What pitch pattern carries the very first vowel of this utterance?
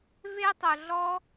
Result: high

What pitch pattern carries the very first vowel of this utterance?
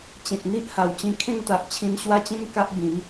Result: low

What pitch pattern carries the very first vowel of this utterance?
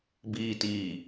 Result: low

